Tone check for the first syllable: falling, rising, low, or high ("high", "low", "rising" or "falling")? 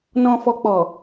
low